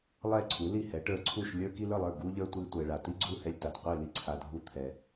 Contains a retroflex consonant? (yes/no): yes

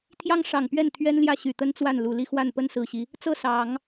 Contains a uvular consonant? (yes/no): no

